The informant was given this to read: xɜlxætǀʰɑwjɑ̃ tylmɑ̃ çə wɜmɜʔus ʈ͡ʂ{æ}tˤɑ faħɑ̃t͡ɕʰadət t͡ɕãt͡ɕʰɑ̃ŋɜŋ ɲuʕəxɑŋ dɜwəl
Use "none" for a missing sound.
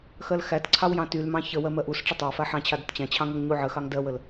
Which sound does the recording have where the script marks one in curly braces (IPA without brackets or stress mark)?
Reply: ə